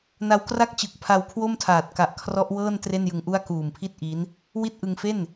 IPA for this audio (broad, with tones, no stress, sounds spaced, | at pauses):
n a˦˥ w k r a˥˩ k̚ t͡ɕ ɯ˨˩ k̚ pʰ a˧ w kʰ w o˥˩ m tʰ aː˨˩ t̚ k a˨˩ ʔ kʰ r ɔ˦˥ ʔ w ɤː˥˩ n t r e˥˩ n j ɯ˧ ŋ ʔ u˥˩ a̯ k uː˨˩ m pʰ i˥˩ t̚ ʔ i˦˥ n | w i˥˩ t̚ ʔ ɯ˧ ŋ f e˥˩ n